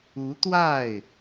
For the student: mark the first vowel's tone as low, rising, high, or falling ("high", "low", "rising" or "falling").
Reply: rising